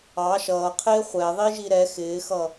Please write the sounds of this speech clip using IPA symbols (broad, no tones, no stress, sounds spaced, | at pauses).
ɑ ʃ ʌː qʰ ɪː χʷ ɛ ðˤ i ʒ i ɾ ɛ x ɪː x ʌ